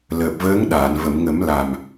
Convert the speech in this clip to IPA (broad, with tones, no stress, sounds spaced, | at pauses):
l əː˨˩ p̚ v əː˧˥ ŋ ɗ aː˨˩˨ n v ə˨˩˨ m ŋ ə˨˩˦ m l a˨˩ m